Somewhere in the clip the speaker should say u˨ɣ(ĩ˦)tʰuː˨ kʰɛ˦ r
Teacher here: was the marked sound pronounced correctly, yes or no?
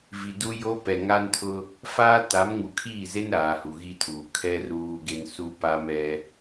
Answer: no